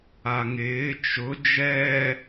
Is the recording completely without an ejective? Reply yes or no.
yes